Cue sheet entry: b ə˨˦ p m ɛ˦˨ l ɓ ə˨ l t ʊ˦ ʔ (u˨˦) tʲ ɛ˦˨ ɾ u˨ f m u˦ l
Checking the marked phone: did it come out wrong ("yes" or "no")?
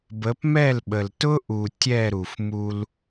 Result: yes